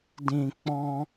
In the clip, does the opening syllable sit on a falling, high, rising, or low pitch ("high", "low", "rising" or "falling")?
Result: low